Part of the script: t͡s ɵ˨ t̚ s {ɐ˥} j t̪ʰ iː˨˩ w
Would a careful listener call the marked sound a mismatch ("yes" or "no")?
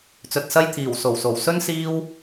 no